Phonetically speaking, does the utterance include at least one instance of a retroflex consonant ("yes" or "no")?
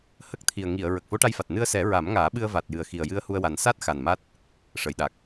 yes